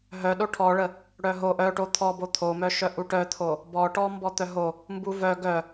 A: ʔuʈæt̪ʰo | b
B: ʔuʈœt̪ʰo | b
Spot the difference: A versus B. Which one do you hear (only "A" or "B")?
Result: B